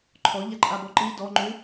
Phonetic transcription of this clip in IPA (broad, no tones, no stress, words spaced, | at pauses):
ǃʰɔʎaǃʼabɔ ǃi dɔŋ͡ǃʉ